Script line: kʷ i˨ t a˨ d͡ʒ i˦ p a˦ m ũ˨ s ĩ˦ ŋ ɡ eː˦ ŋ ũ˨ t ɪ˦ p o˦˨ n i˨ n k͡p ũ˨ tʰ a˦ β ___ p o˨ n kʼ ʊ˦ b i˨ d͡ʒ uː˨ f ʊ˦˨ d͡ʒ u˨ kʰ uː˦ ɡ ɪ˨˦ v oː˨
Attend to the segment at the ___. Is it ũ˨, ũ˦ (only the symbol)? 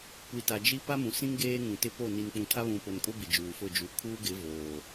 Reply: ũ˨